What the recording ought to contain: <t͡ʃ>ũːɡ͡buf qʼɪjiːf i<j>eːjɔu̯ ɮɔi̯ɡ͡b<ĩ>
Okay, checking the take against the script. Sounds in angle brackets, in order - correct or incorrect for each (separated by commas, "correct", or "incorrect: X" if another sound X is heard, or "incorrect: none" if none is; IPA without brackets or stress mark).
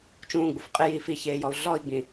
correct, incorrect: ç, correct